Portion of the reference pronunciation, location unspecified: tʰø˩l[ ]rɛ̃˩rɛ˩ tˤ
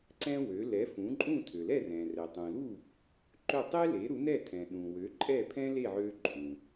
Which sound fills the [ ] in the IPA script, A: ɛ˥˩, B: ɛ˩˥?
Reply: A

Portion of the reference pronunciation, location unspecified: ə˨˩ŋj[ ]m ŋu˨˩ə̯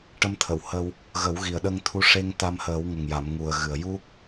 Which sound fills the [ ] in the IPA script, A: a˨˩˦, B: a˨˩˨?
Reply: B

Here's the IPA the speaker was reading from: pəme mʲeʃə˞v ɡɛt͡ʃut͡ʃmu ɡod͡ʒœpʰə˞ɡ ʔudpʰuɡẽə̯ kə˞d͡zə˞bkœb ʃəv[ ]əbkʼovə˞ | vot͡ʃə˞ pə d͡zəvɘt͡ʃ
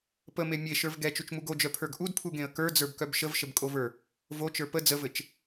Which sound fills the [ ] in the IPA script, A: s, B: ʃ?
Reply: B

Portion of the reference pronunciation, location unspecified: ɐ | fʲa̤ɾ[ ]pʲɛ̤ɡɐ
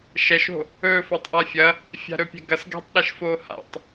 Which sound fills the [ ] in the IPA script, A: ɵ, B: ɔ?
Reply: A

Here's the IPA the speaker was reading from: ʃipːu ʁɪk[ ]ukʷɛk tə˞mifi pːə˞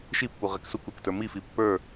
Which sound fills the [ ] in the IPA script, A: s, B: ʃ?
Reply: A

